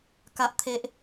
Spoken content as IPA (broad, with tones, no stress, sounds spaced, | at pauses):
k a˨ ʔ t̪ʰ e˨ ʔ